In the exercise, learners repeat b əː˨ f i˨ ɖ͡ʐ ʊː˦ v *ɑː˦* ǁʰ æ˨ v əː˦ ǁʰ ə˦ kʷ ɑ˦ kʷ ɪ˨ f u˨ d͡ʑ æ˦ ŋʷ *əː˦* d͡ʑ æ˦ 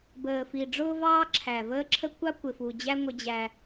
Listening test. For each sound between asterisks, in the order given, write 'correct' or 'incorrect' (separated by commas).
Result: correct, incorrect